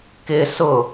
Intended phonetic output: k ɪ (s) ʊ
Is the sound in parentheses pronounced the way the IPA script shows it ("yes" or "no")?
yes